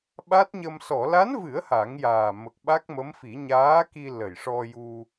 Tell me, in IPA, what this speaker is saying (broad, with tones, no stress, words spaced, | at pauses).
ɓa˦˥t̚ɲə˧m sɔ˨˩˨la˧˥nvɨ˨˩˦ə̯ ha˨˩˦ŋjaː˨˩ mə˨˩k̚ɓa˦˥k̚mə˧˥mfi˨˩˦ ɲaː˧˥ki˧ lə˨˩jʂɔ˧ju˧